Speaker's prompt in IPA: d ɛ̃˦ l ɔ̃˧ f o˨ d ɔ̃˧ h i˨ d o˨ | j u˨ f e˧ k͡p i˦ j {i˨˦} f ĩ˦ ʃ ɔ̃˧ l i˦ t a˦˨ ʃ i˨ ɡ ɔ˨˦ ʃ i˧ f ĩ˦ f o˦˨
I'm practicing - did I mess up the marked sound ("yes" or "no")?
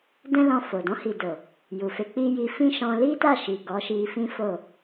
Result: yes